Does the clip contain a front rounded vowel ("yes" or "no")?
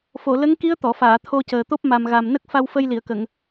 no